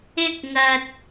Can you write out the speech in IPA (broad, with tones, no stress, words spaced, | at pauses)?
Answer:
ɪ˥k̚ŋɐ˨t̚